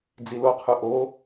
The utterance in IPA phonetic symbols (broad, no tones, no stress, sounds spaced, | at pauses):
d͡z i l o qʰ ʉ ʔ o